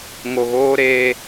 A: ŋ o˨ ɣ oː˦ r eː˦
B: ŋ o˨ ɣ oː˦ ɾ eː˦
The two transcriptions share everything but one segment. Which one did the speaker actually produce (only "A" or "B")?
B